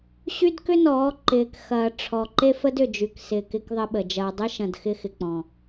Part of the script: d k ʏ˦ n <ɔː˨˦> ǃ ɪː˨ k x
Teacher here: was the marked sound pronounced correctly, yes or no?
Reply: yes